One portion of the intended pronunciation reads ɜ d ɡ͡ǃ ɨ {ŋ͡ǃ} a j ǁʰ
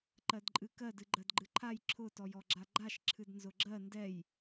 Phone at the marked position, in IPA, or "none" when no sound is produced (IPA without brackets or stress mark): ǃʰ